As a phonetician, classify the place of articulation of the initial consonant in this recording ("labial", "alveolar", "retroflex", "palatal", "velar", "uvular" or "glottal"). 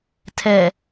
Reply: alveolar